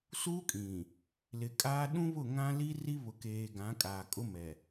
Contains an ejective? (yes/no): yes